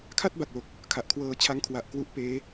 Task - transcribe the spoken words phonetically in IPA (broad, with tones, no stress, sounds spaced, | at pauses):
kʰ a˥˩ t̚ b a˨˩ k̚ l o˨˩ k̚ | kʰ a˨˩ ʔ kʰ w ɤː˧ t͡ɕʰ a˦˥ ŋ kʰ w a˨˩ ʔ k w u˦˥ ʔ p eː˦˥